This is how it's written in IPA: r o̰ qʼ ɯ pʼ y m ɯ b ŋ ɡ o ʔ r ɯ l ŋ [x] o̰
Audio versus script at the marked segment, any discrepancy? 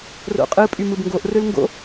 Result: yes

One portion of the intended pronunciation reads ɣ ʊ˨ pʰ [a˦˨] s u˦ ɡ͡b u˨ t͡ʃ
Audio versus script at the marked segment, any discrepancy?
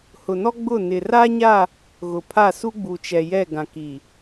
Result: no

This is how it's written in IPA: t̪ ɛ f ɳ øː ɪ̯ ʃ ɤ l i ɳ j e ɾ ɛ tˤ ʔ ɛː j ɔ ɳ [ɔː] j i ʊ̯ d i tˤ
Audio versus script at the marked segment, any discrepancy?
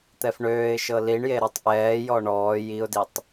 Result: no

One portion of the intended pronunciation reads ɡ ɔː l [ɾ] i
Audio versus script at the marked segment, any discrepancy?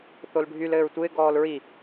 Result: yes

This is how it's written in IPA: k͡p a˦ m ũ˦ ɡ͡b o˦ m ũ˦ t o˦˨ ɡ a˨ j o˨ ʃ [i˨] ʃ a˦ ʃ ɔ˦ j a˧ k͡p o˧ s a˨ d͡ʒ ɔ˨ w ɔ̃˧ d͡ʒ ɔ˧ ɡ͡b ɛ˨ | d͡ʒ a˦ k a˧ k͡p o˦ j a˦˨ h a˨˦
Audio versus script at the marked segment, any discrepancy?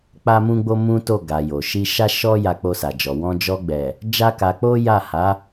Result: yes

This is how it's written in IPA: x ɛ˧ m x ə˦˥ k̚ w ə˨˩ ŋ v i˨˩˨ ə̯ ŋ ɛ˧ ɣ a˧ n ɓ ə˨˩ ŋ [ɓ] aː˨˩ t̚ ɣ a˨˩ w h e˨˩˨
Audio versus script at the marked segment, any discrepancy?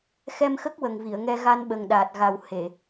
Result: yes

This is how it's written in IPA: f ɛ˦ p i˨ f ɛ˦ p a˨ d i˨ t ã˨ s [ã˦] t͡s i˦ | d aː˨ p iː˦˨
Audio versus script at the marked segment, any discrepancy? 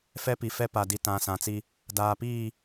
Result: yes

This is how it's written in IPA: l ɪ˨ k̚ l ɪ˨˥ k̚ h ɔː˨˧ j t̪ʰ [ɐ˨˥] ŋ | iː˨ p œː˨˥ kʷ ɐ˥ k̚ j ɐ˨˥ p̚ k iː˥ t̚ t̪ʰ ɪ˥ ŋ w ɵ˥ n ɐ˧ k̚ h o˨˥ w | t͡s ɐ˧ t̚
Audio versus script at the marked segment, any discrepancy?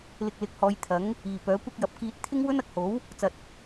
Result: no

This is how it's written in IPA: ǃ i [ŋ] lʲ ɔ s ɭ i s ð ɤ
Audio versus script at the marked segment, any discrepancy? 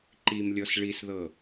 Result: yes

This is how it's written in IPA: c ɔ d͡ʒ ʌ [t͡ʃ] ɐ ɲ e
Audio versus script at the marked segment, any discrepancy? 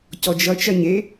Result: no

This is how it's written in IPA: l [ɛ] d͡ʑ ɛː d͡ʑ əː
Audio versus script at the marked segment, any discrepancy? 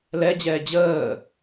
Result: no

